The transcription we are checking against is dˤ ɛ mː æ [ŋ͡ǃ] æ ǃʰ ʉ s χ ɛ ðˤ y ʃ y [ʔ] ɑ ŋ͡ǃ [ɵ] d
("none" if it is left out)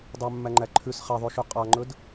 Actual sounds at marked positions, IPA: ŋ͡ǃ, qʼ, ɵ

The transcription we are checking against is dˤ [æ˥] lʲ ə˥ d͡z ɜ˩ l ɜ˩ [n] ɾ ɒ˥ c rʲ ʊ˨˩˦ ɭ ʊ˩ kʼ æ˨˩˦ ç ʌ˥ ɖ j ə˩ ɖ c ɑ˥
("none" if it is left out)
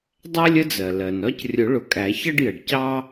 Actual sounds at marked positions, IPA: æ˥, n

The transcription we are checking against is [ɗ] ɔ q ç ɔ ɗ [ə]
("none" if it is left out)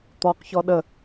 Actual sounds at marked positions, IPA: t̪, ə

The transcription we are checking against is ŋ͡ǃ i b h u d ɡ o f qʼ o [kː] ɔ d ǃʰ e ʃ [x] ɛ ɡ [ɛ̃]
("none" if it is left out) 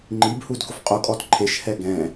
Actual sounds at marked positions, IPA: kʼ, h, ɛ̃

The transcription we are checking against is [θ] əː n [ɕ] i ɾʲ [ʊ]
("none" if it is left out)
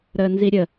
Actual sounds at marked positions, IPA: ɾ, z, ə

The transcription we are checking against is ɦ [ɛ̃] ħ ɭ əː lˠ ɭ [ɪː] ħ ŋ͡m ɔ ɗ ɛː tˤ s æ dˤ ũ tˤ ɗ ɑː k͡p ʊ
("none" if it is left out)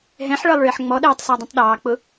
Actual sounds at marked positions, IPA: ɛ̃, ɪː

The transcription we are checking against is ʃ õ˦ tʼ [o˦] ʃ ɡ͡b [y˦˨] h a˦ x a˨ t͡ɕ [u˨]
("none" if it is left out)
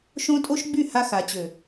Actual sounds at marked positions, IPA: o˦, y˦˨, ø˨

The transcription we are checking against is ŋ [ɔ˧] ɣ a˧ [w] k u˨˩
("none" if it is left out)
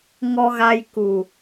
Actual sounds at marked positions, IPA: ɔ˧, j

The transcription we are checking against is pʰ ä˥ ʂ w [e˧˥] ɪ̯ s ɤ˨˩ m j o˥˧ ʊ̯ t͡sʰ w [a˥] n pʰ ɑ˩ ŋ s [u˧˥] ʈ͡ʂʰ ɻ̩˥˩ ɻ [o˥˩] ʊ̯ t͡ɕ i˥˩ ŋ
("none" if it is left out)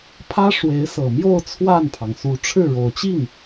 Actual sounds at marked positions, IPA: e˧˥, a˥˩, u˧˥, o˨˩

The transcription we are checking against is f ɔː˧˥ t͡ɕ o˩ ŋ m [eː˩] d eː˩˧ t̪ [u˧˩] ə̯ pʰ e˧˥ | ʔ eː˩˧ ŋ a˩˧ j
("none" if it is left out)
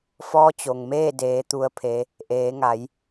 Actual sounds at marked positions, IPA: eː˥˨, u˧˥

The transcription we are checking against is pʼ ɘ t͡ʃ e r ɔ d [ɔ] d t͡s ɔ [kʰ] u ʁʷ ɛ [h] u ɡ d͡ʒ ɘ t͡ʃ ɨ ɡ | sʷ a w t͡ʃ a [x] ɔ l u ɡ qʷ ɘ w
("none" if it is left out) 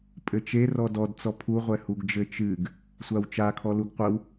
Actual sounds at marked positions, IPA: ɔ, pʰ, h, kʰ

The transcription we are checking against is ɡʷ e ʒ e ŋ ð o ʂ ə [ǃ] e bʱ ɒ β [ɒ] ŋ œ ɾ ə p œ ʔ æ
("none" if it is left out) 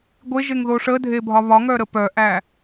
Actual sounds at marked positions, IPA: dʱ, ɒ

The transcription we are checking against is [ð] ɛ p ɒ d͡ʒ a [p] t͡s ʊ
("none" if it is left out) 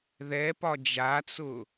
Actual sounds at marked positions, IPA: ð, none

